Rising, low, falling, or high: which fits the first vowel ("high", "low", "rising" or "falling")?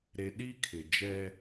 low